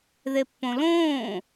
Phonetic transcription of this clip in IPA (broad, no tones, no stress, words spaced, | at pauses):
ðepːõlõː